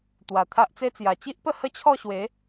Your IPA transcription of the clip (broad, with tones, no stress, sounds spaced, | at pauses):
t̪ w a˨˩ t̪ʰ a˦ ʔ t͡s e˦ t͡s j a˨˩ t͡ɕ i˦ ʔ p ə˥˧ h ə˦ t͡ɕʰ ɔ˥˧ ɕ w e˨˦